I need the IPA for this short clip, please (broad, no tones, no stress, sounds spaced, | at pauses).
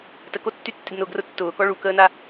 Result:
t ə k o tː y tː ɪ d n ʊ ɡ r ʊ tː ʊː k ɔ ɭ u k əː n a